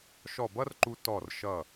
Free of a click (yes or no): no